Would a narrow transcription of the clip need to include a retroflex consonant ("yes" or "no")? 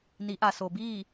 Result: no